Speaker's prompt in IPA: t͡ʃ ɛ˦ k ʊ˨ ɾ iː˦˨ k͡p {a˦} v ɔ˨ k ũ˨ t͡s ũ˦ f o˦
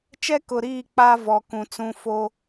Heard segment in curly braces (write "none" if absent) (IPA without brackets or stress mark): a˦